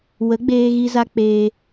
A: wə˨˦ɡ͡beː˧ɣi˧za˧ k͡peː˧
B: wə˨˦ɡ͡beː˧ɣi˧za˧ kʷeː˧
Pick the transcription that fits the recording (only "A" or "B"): A